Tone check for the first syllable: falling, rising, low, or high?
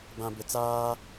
low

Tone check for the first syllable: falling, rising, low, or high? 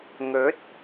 rising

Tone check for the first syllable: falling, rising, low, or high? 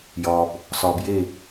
low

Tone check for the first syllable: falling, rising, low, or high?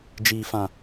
low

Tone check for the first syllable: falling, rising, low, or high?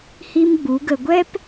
high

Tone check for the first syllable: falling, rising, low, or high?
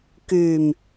low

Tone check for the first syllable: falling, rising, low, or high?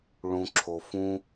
low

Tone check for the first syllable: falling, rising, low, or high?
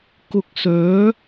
low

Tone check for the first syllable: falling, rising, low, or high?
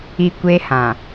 low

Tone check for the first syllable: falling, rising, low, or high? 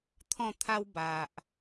falling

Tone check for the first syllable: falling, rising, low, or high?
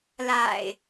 low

